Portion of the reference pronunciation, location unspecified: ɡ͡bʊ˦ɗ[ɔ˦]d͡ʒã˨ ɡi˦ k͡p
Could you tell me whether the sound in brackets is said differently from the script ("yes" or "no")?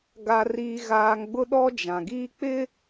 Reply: no